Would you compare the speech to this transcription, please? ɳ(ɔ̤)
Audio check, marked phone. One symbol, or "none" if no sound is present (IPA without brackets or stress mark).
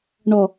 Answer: ɔ